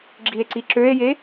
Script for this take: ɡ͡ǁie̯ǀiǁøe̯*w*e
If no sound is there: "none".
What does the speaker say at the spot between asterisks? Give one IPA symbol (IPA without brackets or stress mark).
j